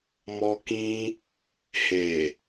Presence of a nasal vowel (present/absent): present